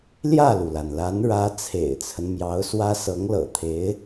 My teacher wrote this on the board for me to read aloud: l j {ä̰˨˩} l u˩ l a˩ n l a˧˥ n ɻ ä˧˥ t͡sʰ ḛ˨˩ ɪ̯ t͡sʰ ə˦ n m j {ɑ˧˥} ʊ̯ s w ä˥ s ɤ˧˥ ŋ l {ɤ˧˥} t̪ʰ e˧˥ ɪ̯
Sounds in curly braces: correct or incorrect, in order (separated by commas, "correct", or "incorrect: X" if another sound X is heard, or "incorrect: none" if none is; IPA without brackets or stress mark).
incorrect: ä˥˩, correct, incorrect: ɤ̰˨˩